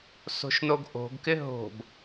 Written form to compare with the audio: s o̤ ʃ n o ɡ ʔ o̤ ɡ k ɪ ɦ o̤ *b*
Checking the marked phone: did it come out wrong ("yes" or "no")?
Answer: no